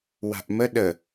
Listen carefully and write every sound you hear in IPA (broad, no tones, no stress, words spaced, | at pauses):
wa̤ʔmə ɗə